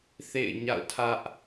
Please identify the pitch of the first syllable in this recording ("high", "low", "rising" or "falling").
falling